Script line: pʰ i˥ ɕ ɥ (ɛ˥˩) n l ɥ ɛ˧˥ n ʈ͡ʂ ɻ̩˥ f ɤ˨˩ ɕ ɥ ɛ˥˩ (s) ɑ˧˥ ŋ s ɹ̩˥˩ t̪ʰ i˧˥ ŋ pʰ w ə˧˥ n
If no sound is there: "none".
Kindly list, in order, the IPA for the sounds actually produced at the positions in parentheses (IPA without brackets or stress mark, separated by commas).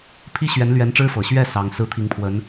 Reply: ɛ˧˥, s